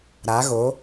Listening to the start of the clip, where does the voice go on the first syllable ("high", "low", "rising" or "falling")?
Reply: rising